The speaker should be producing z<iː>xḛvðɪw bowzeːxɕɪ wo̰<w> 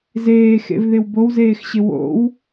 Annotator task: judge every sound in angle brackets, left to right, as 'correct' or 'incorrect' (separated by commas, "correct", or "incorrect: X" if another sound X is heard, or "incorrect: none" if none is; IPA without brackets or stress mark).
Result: incorrect: eː, correct